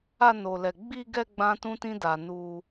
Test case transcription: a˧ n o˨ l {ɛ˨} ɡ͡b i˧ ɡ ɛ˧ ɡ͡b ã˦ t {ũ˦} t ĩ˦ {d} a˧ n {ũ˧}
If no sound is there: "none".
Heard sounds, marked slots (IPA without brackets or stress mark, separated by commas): ɛ˨, ũ˦, d, u˧